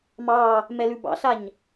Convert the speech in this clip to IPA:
m ɑ | m ɛ l ʉ b ɑ̰ ɬ a ɲ

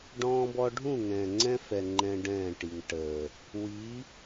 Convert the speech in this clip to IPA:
ɖ ɔ̃ː˦ b ɔ˦ ɖʱ ũ˦˨ ŋ ɛ̃ː˨ ŋ͡ǀ ɛ̃˦ f ɛ˨ ŋ͡ǃ ɛ̃˦ ɖ ɛ̃ː˦˨ ʈ i˨ ŋ ʈ əː˨ | w i˨˦

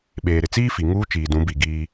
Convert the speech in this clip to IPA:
ɓ eː˨ ɾ ɪ˨ t͡s iː˦ f i˨ ŋ uː˦ t͡ʃ iː˨ d ũ˨˦ b i˨ ɡ iː˦

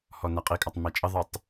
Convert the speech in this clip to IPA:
h ɔ n æ qʼ i kʼ ɑ tˤ m æ t͡ʃʼ ə ðˤ ə˞ tˤ

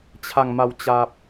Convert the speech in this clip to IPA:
t͡ɕʰ a˨˩ ŋ m a˨˩ w t͡ɕ a˨ p̚

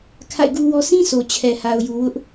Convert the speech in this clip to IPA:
kʰ a̰˦˨ ɪ̯ ɡ u˦ w ɔ˦ s ĩ˦ sʰ o˨ t͡ɕʰ ɛ˨ h a˨ ʊ̯ j u˨ w ʊ˦ ʔ

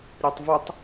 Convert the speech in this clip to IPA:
ɾʲ ɐ tˤ v u tˤ

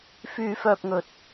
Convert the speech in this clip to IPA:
f yː˧ f œː˧ p̚ ŋ ɵ˨ t̚

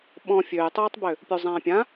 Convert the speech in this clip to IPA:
ɓ ɔ̃ fʲ øː j tˤ uː tˤ b ø | pʲ u zˤ ãː pʲ ã

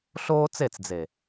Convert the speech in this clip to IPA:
ɬ oː˦ t͡s e˦˨ t͡s d͡z e˨

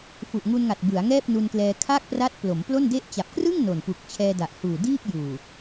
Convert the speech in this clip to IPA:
f u˨˩ ʔ ŋ u˧ n ŋ a˨˩ t̚ b ɯ˩˦ a̯ ŋ ɛː˥˩ p̚ n u˧ n k l ɛː˧ kʰ a˥˩ k̚ p r a˦˥ t̚ p l o˩˦ m p l o˥˩ n d e˥˩ ʔ t͡ɕ a˨˩ p̚ k r ɯ˥˩ ŋ n o˨˩ n p u˨˩ k̚ t͡ɕʰ ɛː˧ d a˨˩ ʔ h uː˨˩ d iː˥˩ k̚ j uː˨˩

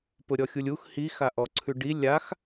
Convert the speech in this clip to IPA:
p ʊ ɾʲ ɔ xʲ u lʲ u x h i x a ʔ ɔ ǀʰ ʉ ɖ i lʲ a x

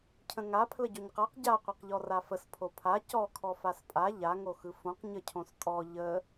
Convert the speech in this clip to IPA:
cʰ ə̃ ŋ a pʰ l ə ɟ o ɲ q a q ɟ a qʷ e q ʎ ɔ r a f ə s pʰ o pʰ a c ɔ kʰ ɔ f a s pʼ a ʎ a ŋ o x ɯ f õ q ɲ ə cʰ õ s tʼ ɔ ʎ ə

